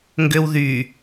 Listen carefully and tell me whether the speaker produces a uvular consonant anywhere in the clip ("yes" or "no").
no